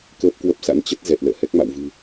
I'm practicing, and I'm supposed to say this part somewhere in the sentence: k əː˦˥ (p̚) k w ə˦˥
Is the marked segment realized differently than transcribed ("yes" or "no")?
no